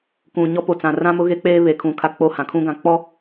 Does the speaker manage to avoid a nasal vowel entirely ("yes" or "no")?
no